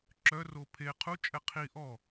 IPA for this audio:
ǁ œ r o pʰ e qʰ u t͡ʃʼ ɛ qʰ i ʔ ɔ

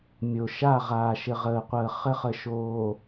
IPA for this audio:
mʲ o˨ ʃ a˦˨ ʁ aː˨ ʃ ɘ˨ ʁ əː˨ qʷ əː˨ χ ɘ˦ χ ə˨ ʃ oː˨

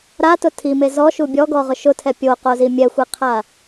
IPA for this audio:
ɾ a t ʊ tʰ i m e z ɔ ʃ u bʲ ɔ ɡ ɔ ʁ ʊ ʃ ʊ tʰ ɛ pʲ o q o z i mʲ ɛ xʷ i qʰ a

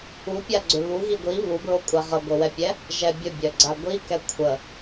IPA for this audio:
u pʲ a ɡ͡ǀ ʏ β u ɣ i ɡʷ i β u b ɹ o kʷʼ a ʁ ə ɡʷ ɘ w ɛ pʲ ɛ | ʒ ɛ bʲ ə bʲ œ ɡ͡ǀ a ɡʷ i k ɛ kʷʰ ə

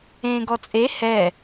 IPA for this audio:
ẽː ɡ ɔ t͡sʼ e h ɛ

